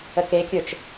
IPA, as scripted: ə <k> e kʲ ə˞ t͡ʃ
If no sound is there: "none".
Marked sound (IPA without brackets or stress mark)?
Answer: k